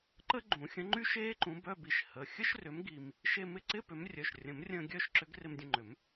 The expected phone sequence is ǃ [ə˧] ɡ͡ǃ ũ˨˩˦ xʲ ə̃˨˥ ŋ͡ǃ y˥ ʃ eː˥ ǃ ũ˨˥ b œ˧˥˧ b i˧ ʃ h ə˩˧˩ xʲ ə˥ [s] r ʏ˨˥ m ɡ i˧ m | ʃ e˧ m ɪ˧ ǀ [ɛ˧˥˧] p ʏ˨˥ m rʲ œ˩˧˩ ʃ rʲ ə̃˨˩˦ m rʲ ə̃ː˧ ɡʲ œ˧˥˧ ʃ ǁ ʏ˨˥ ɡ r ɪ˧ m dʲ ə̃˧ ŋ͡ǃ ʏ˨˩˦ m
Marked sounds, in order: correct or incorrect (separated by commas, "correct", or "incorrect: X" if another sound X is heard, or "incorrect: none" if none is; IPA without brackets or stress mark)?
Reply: incorrect: ə˥, incorrect: ʃ, incorrect: ɪ˧˥˧